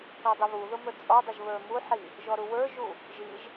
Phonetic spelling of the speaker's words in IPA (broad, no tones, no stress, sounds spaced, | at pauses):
k ɔ dˤ ʊ β u ð ʊ m ə˞ t͡sʼ ɔ dˤ ʊ ʒ β ə˞ m u ħ i | ʒ ɔ ɾ u w ə˞ ʒ u | ʒ i ʒ